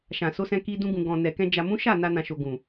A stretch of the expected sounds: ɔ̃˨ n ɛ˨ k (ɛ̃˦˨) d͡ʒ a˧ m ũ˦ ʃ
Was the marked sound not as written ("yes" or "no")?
yes